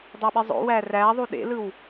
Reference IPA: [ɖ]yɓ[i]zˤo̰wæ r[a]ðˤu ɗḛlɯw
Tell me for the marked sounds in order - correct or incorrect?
incorrect, correct, incorrect

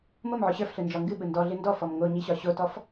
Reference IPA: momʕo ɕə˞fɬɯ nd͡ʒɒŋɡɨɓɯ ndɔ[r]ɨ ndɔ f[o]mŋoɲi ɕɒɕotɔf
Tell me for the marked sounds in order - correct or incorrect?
incorrect, incorrect

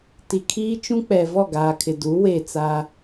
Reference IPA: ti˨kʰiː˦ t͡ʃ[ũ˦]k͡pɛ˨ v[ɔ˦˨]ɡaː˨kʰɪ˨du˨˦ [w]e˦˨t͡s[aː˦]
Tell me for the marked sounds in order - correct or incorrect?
correct, correct, correct, correct

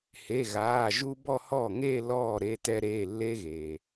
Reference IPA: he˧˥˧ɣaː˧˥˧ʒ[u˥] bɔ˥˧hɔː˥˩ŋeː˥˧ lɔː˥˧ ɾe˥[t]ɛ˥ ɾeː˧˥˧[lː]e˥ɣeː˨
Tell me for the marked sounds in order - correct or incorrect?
correct, correct, correct

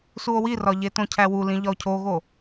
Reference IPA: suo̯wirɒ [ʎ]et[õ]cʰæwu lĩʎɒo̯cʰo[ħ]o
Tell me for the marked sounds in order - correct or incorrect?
correct, correct, incorrect

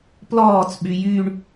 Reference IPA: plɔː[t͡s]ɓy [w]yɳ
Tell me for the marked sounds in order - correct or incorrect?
correct, incorrect

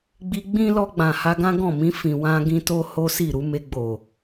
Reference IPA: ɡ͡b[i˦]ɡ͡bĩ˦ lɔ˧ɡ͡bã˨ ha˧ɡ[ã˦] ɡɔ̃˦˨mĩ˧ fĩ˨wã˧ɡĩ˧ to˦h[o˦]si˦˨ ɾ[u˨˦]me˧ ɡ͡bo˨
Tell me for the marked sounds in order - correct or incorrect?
incorrect, correct, correct, correct

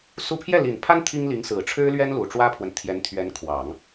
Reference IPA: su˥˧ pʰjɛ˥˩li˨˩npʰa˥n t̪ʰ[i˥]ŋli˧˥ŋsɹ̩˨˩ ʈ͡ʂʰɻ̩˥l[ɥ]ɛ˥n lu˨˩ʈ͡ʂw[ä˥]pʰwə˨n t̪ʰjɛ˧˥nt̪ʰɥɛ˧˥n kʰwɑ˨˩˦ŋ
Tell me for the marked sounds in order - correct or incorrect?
correct, correct, correct

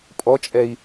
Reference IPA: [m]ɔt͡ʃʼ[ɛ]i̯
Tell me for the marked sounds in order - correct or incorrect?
incorrect, correct

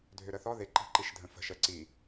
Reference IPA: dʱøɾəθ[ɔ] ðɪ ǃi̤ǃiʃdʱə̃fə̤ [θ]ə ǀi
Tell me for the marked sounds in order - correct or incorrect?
correct, incorrect

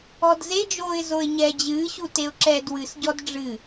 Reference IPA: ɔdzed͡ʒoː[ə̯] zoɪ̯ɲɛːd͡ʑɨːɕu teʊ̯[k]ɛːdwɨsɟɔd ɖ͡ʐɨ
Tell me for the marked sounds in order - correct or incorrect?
incorrect, incorrect

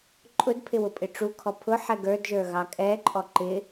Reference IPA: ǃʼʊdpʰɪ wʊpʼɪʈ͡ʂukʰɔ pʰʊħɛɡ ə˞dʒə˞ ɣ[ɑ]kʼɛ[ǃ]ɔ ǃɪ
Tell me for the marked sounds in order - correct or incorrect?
correct, incorrect

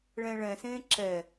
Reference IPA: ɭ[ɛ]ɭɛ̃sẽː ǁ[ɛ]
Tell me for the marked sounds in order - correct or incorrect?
incorrect, correct

